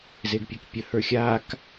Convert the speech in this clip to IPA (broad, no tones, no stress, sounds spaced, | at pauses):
z e ɡ pʲ ɘ k pʲ ə h ə˞ xʲ aː k